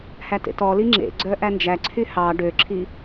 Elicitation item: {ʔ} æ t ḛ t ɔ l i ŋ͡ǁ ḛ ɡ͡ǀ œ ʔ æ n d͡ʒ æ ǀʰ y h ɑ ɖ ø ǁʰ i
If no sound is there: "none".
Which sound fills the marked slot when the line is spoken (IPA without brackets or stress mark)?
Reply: h